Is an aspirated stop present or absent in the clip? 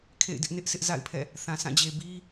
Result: present